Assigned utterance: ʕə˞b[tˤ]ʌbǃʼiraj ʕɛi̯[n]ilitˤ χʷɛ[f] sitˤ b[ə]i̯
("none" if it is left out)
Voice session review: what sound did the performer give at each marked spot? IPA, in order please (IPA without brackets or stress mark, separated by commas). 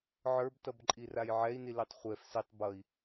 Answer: t, n, f, ʌ